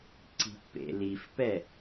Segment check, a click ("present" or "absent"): present